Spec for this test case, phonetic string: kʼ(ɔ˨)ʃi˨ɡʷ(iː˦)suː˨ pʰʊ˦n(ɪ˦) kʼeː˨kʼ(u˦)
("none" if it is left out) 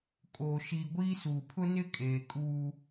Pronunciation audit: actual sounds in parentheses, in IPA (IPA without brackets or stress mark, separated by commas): o˨, iː˦, ɪ˦, uː˦